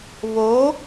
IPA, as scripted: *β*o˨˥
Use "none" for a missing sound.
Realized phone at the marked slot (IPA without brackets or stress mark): β